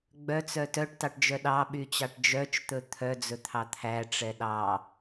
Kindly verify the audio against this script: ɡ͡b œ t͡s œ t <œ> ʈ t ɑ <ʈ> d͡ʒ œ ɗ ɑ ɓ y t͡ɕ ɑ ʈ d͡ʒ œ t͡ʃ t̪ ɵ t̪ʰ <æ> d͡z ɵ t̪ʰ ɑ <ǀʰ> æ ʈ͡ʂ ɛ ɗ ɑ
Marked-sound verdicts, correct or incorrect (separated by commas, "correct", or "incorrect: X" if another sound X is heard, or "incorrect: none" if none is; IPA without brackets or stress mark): correct, correct, incorrect: œ, incorrect: t̪ʰ